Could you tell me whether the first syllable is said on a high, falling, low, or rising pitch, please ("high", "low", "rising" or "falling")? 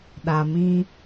low